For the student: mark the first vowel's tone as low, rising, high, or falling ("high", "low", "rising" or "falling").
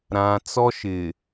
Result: low